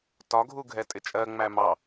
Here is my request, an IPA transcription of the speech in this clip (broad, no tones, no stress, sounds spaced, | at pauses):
t ɒ ɡʱ u ɡʱ ɛ tʼ ɪ t͡ʃʼ ɜ ŋ͡m æ m ɑ